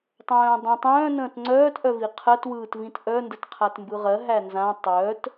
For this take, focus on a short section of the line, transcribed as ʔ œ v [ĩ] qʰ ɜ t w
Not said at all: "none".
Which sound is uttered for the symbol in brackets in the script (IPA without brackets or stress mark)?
i